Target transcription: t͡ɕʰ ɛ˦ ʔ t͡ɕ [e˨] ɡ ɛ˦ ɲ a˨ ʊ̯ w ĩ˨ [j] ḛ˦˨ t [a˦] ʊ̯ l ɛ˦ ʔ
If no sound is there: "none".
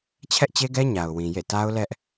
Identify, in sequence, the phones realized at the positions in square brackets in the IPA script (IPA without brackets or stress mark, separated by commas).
e˦, j, a˦